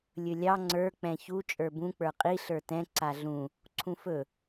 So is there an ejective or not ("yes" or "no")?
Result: yes